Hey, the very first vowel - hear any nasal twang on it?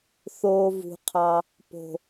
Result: no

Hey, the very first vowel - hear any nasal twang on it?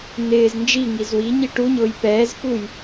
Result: no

